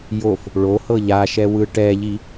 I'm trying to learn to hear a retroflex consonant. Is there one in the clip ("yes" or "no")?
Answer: yes